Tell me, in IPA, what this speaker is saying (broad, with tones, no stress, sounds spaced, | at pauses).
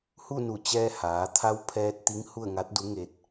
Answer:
h u˥˨ n u˧˩ t͡ɕ ɛː˧ h aː˩˧ t̪ʰ a˧˥ w pʰ ɛː˧ t̚ t̪ i˧˥ ŋ h u˥˨ ə̯ ŋ a˧˥ t̚ d u˧˥ ŋ e˧ t̚